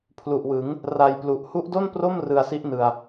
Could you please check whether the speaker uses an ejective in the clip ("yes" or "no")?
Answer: no